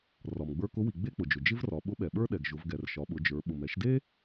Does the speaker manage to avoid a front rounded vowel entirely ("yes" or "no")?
yes